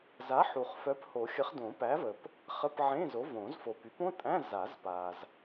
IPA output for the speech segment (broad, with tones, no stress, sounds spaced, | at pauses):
z a˨˥ ħ u˨ χ f œ˨˥ p h o˨˩˦ xʲ ə˨˥ χ d õ˨˩˦ p æ˨˥ v ə˨ p | χ ə˧˥˧ p ʕ ẽ˧˥˧ z o˨˥ v õ˨˩˦ z f o˨ p y˨˥ p õ˧˥˧ tʼ æ̃˧˥˧ z a˨˩˦ z p a˨ z